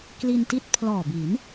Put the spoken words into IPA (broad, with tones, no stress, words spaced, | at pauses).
kli˧nti˥˩t̚ pʰlɔː˨˩bi˩˦n